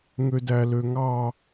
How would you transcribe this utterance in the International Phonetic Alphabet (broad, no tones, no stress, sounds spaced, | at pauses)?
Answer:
ŋ ø d æ l ø ŋ ɑ